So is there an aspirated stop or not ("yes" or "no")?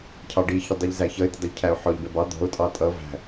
yes